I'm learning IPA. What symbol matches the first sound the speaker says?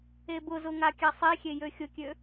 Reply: e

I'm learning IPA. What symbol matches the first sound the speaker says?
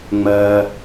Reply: ŋ͡m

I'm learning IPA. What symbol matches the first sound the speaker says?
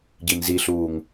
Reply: ɟ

